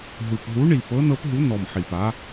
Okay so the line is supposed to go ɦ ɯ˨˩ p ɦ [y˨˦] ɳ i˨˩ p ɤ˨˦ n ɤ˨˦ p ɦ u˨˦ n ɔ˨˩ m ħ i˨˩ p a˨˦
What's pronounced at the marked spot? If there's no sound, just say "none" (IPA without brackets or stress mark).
u˨˦